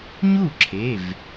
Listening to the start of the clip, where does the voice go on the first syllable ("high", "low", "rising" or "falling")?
falling